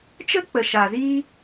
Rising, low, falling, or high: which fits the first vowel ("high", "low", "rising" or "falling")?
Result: high